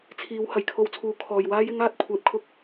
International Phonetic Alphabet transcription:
t͡sʰ iː˨˧ w h ɐ˨˩ j kʰ o˧ w t͡sʰ uː˨˧ kʰ ɔː˨ j w aː˥ j ɪ˥ ŋ aː˥ t̚ kʷʰ ɛː˧ p̚ kʰ ʊ˥ k̚

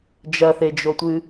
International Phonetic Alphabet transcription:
d͡ʒ ɐ θ e d͡ʒ o tʷ ɨ

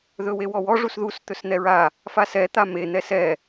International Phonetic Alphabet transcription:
ð ɵ w e w ɔ w ɔ ʐ u s ð u s t̪ ɵ s n̪ ɛ ɹ a | f a s ɛ t̪ a m e n̪ ɛ s ɛ

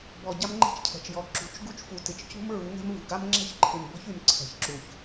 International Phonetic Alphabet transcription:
b ɔ˨ ɟ a˦ m ŋ͡ǃ ɛ̤˦ t͡ʃ cʰ ɛ̤˨ t͡ʃ j ɔ˨ ǁ ṳ˨ t͡ʃ ɡ u˦ t͡ʃ f u˨ t ɪ˨ t͡ʃ c ṳ˦ m ɹ u˨˦ ŋ ɛ̤˦ m v ṳ˨ ɡ a˦ m ŋ͡ǁ ɛ̤˦ ç ǃʰ ɪ˨ m b ɔ̤˦ ç y˨ m ǀʰ ɛ̤˨ ç ǁ u˨ ç

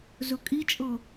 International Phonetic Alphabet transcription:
z ɵ kʼ i t͡ʃʼ ɤ

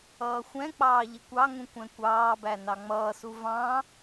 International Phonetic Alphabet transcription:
ʌː xʷ ɛ̃ k͡p ɑː ʎ ɪ kʷ ɑ ŋ ũ kʷ ɛ̃ kʷ ɑː b æ n ɑ ŋ͡m ʌː s u v ɑ̃

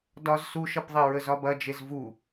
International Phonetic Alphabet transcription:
d ɒ z s u ʃ ɐ p ðˤ ɛ ɹ ə z ɒ b ɐ d͡ʒ e z v u

